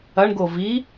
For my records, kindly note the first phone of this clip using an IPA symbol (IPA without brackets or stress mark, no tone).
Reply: ɐ